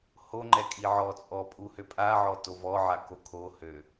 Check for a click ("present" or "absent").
present